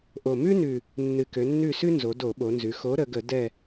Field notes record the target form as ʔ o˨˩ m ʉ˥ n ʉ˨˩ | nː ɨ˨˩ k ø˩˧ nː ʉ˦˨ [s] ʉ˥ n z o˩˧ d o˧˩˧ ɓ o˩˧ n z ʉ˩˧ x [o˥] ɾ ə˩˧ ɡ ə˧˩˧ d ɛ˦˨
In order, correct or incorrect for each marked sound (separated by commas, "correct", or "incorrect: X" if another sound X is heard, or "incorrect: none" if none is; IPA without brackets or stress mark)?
correct, incorrect: o˨˥